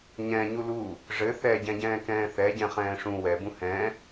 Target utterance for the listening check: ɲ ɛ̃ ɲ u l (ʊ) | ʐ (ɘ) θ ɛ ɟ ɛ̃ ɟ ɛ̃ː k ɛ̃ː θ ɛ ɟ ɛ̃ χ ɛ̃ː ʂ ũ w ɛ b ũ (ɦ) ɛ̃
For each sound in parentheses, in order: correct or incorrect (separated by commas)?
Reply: incorrect, correct, incorrect